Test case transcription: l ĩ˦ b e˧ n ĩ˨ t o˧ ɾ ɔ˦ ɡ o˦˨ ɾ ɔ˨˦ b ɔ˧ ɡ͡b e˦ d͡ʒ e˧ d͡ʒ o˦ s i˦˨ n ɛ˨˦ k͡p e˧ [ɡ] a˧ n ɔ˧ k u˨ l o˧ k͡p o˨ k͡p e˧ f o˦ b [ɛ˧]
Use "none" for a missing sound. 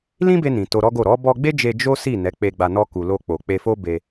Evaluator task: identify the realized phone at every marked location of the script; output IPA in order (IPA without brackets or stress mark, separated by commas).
ɡ͡b, e˧